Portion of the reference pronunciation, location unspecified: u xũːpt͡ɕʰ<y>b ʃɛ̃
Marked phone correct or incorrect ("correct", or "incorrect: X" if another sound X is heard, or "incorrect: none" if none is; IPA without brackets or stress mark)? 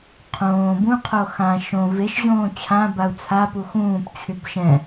correct